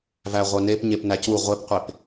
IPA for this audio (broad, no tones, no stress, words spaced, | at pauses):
væʁʷœnep ɲepnæcu ʁʷepqʷep